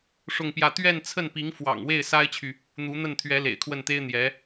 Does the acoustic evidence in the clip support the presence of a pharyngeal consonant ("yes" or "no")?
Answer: no